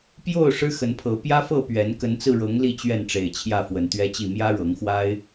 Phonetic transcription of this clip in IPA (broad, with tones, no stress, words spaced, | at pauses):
pjo˥˨ʊ̯ ʂɻ̩˦xə˨˦npʰɤ˨˦ pjä˦fɤ˥˨ pɥɛ˨˦n kə˨˦nt͡sɹ̩˧ɻɤ˨˦ŋ li˥˨t͡ɕɥɛ˥˨nʈ͡ʂe˨˩ɪ̯ t͡ɕʰjä˥˨fwə˨˦nt̪ɥɛ˦t͡ɕi˥˨ mjä˦ɻɤ˨˦ŋxwa˦ɪ̯